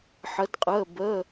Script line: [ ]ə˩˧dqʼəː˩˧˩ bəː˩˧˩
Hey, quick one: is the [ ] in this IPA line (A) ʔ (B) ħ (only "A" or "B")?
B